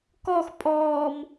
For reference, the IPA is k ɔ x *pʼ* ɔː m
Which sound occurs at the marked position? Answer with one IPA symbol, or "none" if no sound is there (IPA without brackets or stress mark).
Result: pʼ